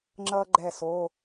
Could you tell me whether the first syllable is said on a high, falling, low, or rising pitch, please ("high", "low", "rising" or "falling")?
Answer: high